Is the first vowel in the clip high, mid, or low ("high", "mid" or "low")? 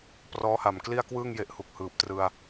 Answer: mid